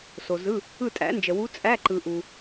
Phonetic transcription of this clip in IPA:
so˨zɯ˧˥˧ | ɯ˦˨tʼæ̰˨˩˦nd͡ʒə˨ wu˧˥t͡sʼæ˧˥˧ ǃɯ˨ʔu˨

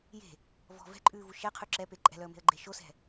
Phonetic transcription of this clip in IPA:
je̤ | vɔ̤ vɛ̤ǃʼʉːvu ʃɛqʰʉ ǁɛpe ǃʼɛ̤lœə̯me̤ə̯ɡ͡ǃe ʃosɛ̤

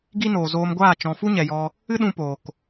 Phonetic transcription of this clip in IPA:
ɡi˦noː˨zoː˧mɡʷaː˦˨ t͡ʃɔ̃˨fu˦ɲɛ˨jɔ˧ | ɨ˦ɗũ˧ poː˨k

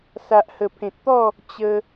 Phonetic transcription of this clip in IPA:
sa˨ʔhə˨˩pʰẽ˨t̚t̪ɔ˥˧ | t͡ɕə˧

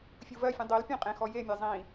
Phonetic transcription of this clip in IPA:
fʲuvɜfʲũ dˤel pʲẽqʼẽxɔ jemʲe zˤĩ

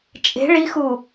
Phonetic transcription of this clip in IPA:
t͡ʃʼe̤ ɭixu

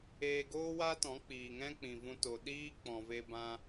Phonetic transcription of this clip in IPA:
eː˧ɡoː˦wa˦tɔ̃˨˦ k͡piː˨ŋɛ̃˦k͡pĩ˨ vũ˧to˨ ɗiː˦k͡pɔ̃˨ve˧ bã˧

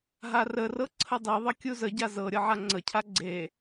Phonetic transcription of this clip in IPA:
ɦarərɤ ǀʰədˤiðˤə kʲuzəɟa zɤ ɾʲɤʕaŋ͡ǀəcʰa ɡ͡ǀe

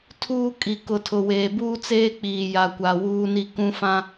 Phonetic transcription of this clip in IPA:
tʰuː˦kʼi˨ kʊ˨tʰʊ˨ weː˨buː˦ t͡seː˦k͡piː˨ ja˨kʷa˨wuː˦ni˦ kũ˦fã˦

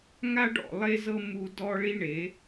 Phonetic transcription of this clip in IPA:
ŋa˦ɖɔ̰˨lˠe˦zɤ˦ mu˦dɔ˦ ɭi˦ɳe˨˦

